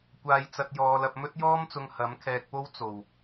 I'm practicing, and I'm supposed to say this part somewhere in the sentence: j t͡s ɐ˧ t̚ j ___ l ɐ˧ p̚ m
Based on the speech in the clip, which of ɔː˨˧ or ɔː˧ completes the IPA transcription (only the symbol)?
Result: ɔː˨˧